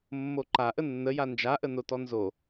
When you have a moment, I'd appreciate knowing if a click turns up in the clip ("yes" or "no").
yes